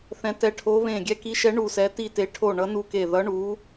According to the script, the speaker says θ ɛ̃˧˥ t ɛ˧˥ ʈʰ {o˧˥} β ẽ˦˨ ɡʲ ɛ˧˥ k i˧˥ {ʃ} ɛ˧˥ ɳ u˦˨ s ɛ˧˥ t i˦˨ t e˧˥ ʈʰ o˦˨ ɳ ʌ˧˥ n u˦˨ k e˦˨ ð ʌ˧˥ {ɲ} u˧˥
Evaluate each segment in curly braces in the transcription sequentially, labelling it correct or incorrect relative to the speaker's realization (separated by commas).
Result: correct, correct, incorrect